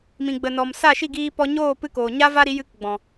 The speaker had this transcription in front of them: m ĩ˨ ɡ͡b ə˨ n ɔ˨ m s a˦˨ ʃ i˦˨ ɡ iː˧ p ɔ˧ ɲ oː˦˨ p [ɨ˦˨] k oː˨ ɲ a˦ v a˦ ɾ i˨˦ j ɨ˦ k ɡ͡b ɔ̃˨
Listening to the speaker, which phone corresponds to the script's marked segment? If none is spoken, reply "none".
ɨ˦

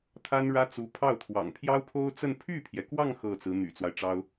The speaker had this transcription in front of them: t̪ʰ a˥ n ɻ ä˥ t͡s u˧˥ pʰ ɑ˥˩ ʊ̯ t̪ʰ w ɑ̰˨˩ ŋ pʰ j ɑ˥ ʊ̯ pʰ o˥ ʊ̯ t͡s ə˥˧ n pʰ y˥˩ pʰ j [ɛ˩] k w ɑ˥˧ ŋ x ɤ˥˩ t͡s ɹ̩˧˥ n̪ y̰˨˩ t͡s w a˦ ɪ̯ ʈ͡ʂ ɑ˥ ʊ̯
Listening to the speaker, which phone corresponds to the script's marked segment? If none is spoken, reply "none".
ɛ˩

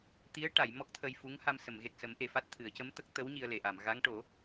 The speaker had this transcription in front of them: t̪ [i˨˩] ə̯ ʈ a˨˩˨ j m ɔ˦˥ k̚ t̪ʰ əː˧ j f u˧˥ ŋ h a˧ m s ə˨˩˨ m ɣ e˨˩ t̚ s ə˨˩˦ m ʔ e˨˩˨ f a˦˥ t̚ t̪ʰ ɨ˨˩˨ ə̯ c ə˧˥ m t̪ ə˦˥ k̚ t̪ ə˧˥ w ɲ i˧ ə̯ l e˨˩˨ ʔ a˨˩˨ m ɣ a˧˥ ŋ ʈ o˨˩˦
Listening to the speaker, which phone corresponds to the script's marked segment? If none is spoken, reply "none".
i˧˥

